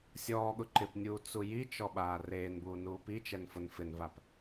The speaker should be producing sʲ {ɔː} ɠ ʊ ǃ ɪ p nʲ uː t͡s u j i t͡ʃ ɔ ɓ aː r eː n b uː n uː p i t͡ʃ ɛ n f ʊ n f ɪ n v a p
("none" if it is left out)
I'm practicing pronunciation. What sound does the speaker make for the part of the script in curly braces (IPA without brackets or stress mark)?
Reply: ɔː